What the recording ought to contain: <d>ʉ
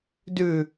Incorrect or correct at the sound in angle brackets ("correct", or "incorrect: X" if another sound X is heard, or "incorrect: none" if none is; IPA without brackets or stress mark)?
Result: correct